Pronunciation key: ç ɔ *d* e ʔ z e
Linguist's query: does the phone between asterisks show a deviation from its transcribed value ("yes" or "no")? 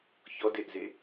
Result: no